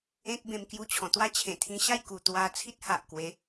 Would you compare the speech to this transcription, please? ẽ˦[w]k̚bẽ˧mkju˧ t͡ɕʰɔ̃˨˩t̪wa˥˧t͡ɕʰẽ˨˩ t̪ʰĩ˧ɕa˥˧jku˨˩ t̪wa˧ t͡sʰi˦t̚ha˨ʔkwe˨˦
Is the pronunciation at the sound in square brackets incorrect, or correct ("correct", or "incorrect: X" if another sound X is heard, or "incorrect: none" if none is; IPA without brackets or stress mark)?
incorrect: none